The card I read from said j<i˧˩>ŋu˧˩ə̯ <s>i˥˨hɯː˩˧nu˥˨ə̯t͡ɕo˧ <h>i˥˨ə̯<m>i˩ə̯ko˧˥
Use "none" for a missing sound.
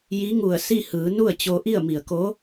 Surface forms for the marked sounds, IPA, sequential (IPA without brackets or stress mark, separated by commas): i˧˥, s, ʔ, m